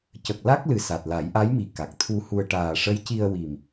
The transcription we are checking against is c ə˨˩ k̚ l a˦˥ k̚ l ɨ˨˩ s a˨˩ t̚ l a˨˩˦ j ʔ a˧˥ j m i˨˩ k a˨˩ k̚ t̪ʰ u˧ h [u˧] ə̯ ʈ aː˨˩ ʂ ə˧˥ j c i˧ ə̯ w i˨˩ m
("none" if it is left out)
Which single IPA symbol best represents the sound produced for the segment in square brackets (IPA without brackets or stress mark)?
u˧